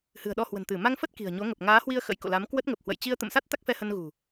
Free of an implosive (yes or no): no